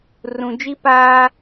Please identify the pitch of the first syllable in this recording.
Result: low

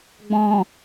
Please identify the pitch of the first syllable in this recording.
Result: low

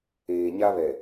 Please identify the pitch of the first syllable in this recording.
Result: low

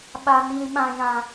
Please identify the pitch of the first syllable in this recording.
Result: high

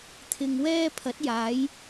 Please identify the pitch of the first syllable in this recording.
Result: low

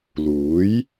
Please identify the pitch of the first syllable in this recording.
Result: rising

